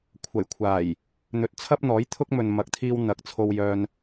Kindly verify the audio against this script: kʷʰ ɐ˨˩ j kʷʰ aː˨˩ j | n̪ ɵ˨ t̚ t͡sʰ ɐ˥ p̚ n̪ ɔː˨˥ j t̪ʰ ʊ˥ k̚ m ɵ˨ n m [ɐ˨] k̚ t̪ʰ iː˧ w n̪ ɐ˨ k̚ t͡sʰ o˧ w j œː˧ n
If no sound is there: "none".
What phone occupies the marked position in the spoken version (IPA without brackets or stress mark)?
ɐ˨˥